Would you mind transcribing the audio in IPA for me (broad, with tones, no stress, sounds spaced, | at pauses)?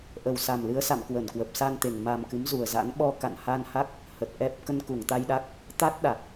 ʔ ə˨˩ w s a˨˩ m l ɨ˨˦ ə̯ s a̰˧˨ m k w ə˧˩ n k w ə˨˩ p̚ s a˧ n t̪ e˨˩ ŋ m a˨˩ m k ɨ˨˦ m z u˨˩ ə̯ z a̰˧˥ n ɓ ɔ˧ k a̰˧˨ n h a˧ n h a˦˥ k̚ | h ə˨˩ t̚ ʔ ɛ˨˩ p̚ k ə˧ n k u˧˩ ŋ t̪ a˧ j ɗ a˦˥ k̚ | t̪ a˦˥ t̚ ɗ a˨˩ k̚